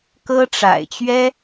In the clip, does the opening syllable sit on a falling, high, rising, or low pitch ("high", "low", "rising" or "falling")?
high